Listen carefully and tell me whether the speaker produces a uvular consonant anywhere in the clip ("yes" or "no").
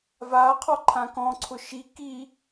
yes